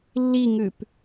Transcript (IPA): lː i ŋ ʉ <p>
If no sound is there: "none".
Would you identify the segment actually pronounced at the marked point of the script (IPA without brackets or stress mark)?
p